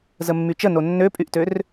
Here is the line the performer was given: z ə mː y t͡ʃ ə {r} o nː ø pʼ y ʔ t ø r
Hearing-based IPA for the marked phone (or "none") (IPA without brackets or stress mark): n